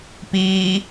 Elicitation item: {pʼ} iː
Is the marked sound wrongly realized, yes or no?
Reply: yes